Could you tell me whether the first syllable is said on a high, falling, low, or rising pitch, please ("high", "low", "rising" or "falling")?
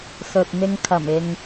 low